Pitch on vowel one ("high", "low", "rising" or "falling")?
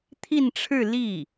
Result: falling